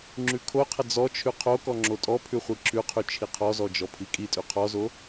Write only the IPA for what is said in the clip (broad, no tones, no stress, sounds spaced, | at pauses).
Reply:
ŋ͡ǁ ʉ kʰ o qʰ ə d͡z ɔ t͡ʃʰ ʉ qʰ o k ɔ ŋ͡ǁ o tʼ ɔ pʰ ʉ χʷ i ǁ ʉ qʰ ʉ t͡ʃʰ i qʰ ɔ z ɔ d͡ʒ ɔ pʰ i kʼ i tʼ ʉ qʰ ɔ z o